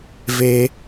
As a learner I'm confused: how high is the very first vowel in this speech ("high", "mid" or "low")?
mid